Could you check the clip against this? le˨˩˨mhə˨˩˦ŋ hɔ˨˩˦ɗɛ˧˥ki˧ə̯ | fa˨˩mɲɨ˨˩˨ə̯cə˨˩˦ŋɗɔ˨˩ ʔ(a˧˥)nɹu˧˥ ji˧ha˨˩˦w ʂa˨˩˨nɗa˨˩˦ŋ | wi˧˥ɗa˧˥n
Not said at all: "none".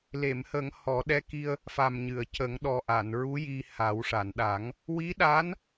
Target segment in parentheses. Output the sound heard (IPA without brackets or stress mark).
a˨˩˨